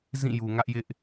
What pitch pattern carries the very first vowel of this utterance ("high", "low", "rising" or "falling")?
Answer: falling